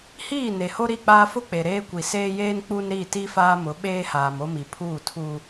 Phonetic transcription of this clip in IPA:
hiː˦˨ ne˨ho˦ ɾi˦˨k͡paː˦ fʊ˦k͡pe˨ ɾeː˦kʷi˨ seː˦jeː˦n k͡pu˦n ɾi˦˨ti˦ faː˦mʊ˨˦ ɓeː˦haː˨m o˦mi˨pʰuː˦˨ tʰuː˦

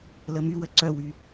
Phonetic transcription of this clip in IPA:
ləmywə ǀœwy

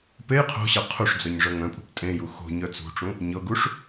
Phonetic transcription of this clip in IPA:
pej qʰo̤ɕɤ qʰuʂd͡zœɲ ʐœŋœ̃pʼṳp tʼẽju xo̤ ɲœt͡sṳʈ͡ʂũ | ɲɤɡuʂ

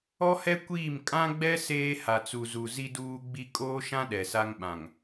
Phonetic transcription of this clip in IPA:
ɔ˦hɛ˦ kʷiː˦˨m kʼã˦ɡ͡bɛ˦ seː˦ ha˨t͡su˨zu˨ zi˦duː˦ ɡ͡bi˦ kʼoː˦ʃã˦ ɗɛ˨sa˦ŋɓã˨ŋ

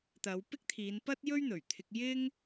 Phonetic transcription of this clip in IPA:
t̪ɐ˨˧wpɪ˥k̚t̪ʰiː˨˧npɐ˥t̚ jɵ˥ɥn̪ɵ˨˩ɥt̪ʰɪ˧k̚ jɪ˥ŋ

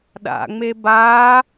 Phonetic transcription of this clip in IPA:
ɗa̰ŋ͡me ba

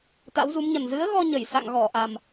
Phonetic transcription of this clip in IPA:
t̪a̰˧˥wzu˨˦mɲə˨˩n zɨ˨˦ə̯ɣɔ˧ ɲə˧˩jsa̰˧˨ŋɣɔ˧˩ʔa˨˩m

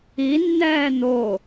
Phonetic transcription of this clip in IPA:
inːɛː n̪o

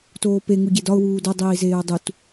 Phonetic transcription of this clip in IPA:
toːpe ŋuɟedɒʊ̯ wuːdo dˤiːzeːʊ̯dˤut

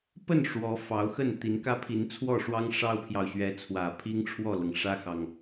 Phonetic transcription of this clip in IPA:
pə˥˩n ʂwɔ˧˥fɑ˧˥ʊ̯xə˥˩n t̪i˧˥n kä˥pʰi˧˥nt͡sʰwɔ˥˩ʂwɑ˥ŋ ʂɑ˥ʊ̯pʰjɑ˨ʊ̯ ɕɥɛ˧˥t͡sʰwä˨˩ pʰi˥ŋʈ͡ʂʰwɔ˥˩lɤ˩ŋ ʂä˥xɑ˨ŋ

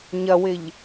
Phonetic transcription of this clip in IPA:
ɲɐwɪʎ

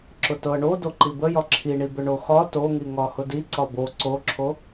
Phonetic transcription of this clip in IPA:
ǁʊtɤ ɳo doǃibəjɒ ǁʰiɳibʏ ɳoxɒ toŋi ŋɒhʊdiǀɒ bo ǀoǁʰo

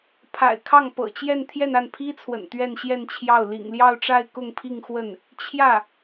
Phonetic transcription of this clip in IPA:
pʰa̰˨˩ɪ̯kʰɑ˥˩ŋ pɤ̰˨˩t͡ɕjɛ˥˧n t̪ʰjɛ˥˧na˥˩npʰi˥t͡sʰwə̰˨˩n t̪ɥɛ˥˧nɕjɛ˥˧nt͡ɕʰjɑ˥˩ʊ̯ lḭ˨˩ŋljɑ˥˧ʊ̯ʈ͡ʂa˥˧ɪ̯ kʊ˥˧ŋpʰi˥˧ŋxwə˥˩n | t͡ɕʰjä˥˩

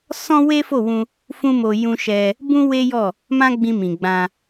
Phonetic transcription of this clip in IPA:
sɔ̃˦we˦fo˦˨wũ˧ | fũ˦mo˧ jũ˧ʃɛ˧ | bũ˦ we˦jɔ˦˨ | mã˦ɡ͡bĩ˧ mĩ˨ɡ͡bã˧

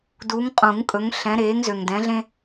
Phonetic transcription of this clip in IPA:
du˨˦ŋqʼũ˨˩˦ŋkʼɵ˨˦ŋ ɬɛ̃˨˦ ɾeː˨˦ŋzø˨ŋdɛ̃˨˦ɮẽ˦

